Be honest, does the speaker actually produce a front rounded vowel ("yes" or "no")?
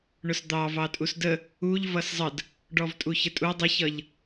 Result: no